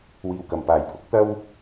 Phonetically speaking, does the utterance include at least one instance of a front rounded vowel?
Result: no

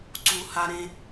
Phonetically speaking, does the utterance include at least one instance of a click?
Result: yes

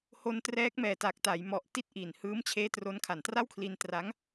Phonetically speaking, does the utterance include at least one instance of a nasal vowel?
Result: no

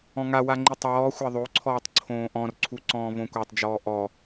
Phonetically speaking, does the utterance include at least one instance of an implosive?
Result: no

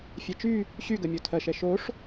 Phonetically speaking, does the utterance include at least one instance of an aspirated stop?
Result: yes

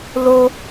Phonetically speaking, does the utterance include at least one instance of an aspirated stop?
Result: no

